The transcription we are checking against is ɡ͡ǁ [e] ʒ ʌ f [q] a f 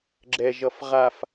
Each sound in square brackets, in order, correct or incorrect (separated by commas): incorrect, incorrect